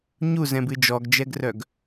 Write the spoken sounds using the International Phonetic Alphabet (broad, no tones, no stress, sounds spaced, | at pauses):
ɲ u z ɛ̃ b ɨ d͡ʒ ɔ ɡ d͡ʒ ɛ ɡ r œ ɡ